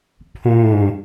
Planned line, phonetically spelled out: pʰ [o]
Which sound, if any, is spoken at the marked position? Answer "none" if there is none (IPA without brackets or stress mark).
õ